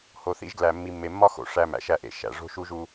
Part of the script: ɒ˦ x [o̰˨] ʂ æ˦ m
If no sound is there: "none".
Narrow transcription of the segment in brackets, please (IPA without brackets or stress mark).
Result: o̰˨